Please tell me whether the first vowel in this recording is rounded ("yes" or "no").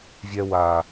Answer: no